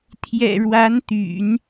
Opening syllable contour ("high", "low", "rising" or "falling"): low